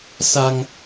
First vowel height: low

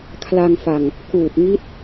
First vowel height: low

